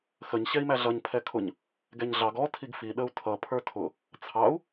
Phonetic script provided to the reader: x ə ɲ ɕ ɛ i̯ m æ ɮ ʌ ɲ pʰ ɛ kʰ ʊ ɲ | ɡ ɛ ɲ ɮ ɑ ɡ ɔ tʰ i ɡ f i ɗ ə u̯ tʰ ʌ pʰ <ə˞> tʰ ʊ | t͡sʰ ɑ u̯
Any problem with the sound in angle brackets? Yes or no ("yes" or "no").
no